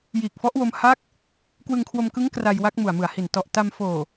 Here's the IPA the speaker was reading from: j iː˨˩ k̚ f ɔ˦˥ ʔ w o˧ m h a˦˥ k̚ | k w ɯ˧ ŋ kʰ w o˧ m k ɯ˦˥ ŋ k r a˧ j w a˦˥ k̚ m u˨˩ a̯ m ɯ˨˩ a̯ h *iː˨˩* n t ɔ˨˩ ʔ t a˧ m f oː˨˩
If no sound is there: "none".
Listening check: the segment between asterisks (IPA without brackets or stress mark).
i˨˩